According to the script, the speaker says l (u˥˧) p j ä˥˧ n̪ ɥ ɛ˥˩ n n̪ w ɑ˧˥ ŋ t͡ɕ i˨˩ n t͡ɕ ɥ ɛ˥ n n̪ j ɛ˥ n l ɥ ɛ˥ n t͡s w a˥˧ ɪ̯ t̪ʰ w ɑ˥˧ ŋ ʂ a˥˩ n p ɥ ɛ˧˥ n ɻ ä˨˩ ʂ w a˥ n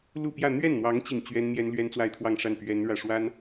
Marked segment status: correct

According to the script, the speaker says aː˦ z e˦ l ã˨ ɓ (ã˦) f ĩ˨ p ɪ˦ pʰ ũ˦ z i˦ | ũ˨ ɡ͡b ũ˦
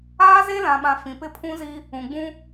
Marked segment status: incorrect: ã˨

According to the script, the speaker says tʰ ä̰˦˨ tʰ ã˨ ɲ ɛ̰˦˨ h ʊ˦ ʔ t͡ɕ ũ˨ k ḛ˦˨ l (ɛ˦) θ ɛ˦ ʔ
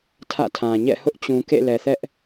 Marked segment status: incorrect: ɛ˨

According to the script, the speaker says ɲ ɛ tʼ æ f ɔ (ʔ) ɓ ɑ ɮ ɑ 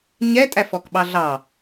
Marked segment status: incorrect: k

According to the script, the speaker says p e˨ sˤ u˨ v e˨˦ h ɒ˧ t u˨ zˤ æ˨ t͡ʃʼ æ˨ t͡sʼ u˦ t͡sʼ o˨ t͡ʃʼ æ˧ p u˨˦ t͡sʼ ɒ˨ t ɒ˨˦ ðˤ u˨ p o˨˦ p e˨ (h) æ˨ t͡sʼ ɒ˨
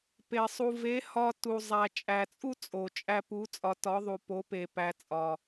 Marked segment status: incorrect: p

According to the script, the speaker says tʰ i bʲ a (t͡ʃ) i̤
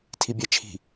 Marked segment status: incorrect: t͡ʃʰ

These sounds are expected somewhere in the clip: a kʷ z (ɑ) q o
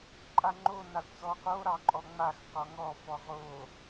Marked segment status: incorrect: ɔ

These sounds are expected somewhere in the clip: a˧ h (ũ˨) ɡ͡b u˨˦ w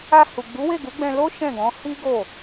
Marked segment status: incorrect: u˨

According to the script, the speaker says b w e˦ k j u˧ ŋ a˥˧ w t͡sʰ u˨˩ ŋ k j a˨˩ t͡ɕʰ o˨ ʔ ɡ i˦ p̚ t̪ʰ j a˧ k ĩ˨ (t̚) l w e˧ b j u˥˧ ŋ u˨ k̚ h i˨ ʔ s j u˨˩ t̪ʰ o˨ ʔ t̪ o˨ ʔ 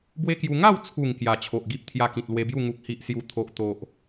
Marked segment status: correct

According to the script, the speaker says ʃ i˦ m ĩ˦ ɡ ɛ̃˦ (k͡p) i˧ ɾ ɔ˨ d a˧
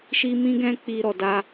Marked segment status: correct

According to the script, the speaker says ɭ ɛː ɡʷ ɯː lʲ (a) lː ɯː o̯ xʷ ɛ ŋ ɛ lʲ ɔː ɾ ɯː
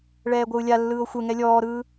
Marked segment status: correct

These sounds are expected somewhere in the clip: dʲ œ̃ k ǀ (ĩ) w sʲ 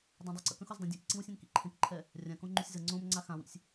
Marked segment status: correct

